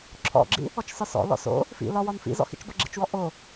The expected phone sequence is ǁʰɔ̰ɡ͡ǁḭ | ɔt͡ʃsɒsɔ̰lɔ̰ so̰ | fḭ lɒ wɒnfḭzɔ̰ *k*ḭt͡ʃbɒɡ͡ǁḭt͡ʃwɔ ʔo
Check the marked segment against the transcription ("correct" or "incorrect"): incorrect